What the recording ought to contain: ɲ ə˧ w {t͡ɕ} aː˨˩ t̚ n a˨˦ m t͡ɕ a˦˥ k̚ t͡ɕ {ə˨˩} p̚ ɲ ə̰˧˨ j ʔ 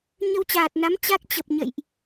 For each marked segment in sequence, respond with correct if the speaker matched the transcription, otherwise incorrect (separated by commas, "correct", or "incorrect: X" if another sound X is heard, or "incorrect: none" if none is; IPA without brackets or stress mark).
correct, correct